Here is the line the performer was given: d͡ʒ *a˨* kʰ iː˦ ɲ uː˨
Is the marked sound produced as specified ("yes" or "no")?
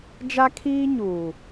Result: no